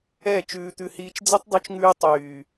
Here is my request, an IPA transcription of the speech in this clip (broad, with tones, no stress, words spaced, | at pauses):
ɛː˦˨t͡ʃʉː˧t̪ʉ˧hiː˧t͡ʃ d͡zɛ˦tˤdˤu˧t͡ʃŋʉː˧ tˤyː˨